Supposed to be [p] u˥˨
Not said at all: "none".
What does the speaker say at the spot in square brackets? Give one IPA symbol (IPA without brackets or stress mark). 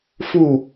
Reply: f